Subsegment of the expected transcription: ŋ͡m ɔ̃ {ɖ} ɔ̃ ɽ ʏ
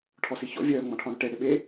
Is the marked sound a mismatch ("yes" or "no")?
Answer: yes